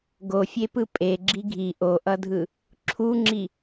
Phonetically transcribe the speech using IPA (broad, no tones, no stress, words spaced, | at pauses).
ɡofʲepɯ pʼeɡ͡ǁi ɡʱi ʔoʔʌdʱɯ | ǁʰuŋ͡ǁi